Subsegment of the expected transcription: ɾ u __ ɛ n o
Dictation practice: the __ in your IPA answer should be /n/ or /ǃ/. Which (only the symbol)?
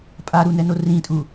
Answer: n